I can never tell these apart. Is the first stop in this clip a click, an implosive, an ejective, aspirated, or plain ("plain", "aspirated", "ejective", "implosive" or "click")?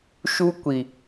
plain